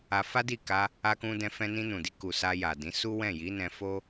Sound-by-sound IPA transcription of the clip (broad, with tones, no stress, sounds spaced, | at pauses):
a˧ f a˦ d i˦˨ k a˧ | a˧ k ũ˧ d ɛ̃˧ f ɛ̃˧ n ĩ˧ n ũ˨ d i˧ k u˨ s a˧ j a˨ d ĩ˨˦ s u˦ w ɛ̃˦˨ j i˨˦ n ɛ̃˧ f o˦